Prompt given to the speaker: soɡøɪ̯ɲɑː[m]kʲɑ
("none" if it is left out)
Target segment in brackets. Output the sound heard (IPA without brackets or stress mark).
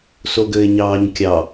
ɲ